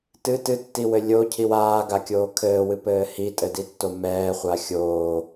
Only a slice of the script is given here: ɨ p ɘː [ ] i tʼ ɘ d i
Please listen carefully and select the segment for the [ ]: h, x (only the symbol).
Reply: h